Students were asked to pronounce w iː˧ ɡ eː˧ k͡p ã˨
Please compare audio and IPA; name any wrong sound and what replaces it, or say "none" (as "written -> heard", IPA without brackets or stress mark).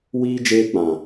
ɡ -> d͡ʒ